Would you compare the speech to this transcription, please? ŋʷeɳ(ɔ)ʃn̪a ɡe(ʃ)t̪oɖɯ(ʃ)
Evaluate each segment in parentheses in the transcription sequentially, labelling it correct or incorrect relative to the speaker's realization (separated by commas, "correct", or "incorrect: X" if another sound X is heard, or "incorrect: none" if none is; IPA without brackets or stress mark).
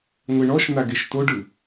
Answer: correct, correct, incorrect: none